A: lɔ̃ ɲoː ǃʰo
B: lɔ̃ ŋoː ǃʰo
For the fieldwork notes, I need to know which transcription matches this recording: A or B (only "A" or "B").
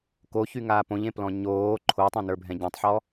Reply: A